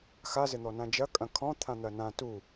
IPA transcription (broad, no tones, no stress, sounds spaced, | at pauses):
x a z ɘ n̪ ɔ n ã d͡ʒ ɐ kʼ ɐ̃ kʰ ɔ̃ t̪ʰ ã n̪ ɐ n ã t u